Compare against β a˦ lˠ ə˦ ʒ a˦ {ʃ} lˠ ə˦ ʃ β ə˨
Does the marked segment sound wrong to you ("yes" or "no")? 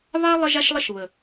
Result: no